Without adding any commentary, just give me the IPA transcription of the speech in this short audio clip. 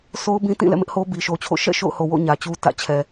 so˦ʊ̯ bĩ˦tĩ˦˨ lɛ̰˦˨mɪ˦ʔ ho˦ bi˨ʃo˨t͡ɕʰo̰˦˨ ʃɛ̰˦˨ ʃo̰˦˨ʊ̯ho˨wo̰˦˨ ɲä˨t͡ɕu˦ tä̰˦˨t͡ɕʰɛ˨

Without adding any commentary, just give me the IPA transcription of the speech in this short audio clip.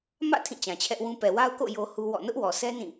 mä̰˦˨ tʰĩ˦˨t͡ɕã˨t͡ɕʰɛ˦ʔwũ˦ pɛ˨wa˦ʊ̯ko̰˦˨ jo˦hu˦wɔ̰˦˨ nʊ˦ʔwɔ˨sɛ˦ nĩ˦˨

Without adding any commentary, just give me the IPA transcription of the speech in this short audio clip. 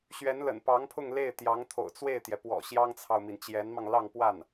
ɕɥɛ˧˥nlə̰˨˩npɑ˧˥ŋpʰʊ˥˧ŋ le˥˩ɪ̯t̪jɑ˧˥ŋt̪ʰo̰˨˩ʊ̯ t͡swe˥˩ɪ̯t̪jɛ˩pwɔ̰˨˩ ɕjɑ˥ŋt͡sʰɑ˨ʊ̯mi˩n t͡ɕjɛ˧˥nmɑ˧ŋ lɑ˥˧ŋpwa˥˩n

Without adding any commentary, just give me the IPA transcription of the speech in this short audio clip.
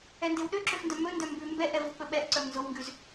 ɛndewɗø ǁøfndœmɵndœ mbʉ mbɛʔɛvok͡pɵ ɓɛʔǀœm nzowŋɡʉz

